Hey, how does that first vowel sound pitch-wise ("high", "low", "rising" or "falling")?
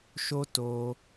high